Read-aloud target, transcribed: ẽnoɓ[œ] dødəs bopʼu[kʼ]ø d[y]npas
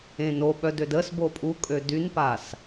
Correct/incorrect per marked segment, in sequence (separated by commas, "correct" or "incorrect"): correct, correct, correct